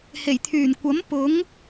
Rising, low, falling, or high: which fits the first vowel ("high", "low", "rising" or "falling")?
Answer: low